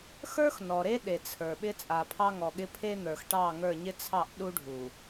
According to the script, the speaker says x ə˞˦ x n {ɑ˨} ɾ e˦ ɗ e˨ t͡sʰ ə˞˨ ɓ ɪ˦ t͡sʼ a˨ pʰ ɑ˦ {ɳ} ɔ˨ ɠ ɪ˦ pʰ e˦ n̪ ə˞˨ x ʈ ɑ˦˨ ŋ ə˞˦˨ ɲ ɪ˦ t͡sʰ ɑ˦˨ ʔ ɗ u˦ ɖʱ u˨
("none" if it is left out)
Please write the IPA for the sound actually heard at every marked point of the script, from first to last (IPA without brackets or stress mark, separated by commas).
ɔ˨, ŋ